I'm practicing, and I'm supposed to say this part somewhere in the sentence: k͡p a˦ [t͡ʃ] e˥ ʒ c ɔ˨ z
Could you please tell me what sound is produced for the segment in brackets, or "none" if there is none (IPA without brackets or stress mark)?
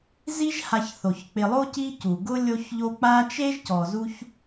t͡ʃ